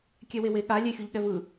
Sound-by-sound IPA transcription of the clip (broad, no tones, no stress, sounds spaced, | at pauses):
kʲ ɛ w e w e ɠ a lʲ e xʲ u ʎ ɠ ɛ v ɯ